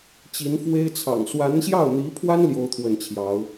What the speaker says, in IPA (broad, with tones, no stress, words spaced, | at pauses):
t͡ɕi˧˥nfwe˥ɪ̯ t͡sʰɑ̰˨˩ŋ swa˧˥nɕjɑ˥˩ʊ̯n̪i˧˥pʰwa˥n ljo˥ʊ̯t̪ʰwə˥˩nt͡ɕʰjɑ˧˥ʊ̯